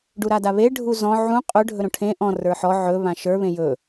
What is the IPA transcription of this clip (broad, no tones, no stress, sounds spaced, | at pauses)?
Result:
ɖ u ɾ a d a β e ɖʱ u z ɔ̃ ʕ ũ qʼ ɵ ɖʱ ɵ ɾ õ ʈʰ ẽ ʔ ɔ̃ r ə˞ ħ ɔ ʕ ɵ β ã ʃ ə˞ β ẽ j ɵ